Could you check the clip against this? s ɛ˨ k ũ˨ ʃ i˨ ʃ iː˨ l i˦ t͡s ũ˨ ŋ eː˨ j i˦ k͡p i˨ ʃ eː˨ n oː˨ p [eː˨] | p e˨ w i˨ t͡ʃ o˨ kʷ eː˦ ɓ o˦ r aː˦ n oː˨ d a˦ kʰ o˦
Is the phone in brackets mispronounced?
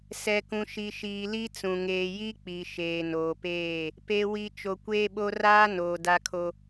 yes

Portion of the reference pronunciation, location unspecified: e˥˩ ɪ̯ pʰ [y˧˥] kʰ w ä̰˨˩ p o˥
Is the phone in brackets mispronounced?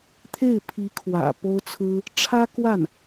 yes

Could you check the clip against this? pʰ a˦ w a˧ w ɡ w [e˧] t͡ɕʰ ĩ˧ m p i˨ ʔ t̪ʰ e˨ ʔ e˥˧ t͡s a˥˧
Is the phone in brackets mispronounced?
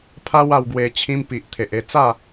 no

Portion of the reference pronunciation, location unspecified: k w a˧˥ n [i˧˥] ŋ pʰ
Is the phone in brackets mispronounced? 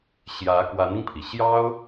yes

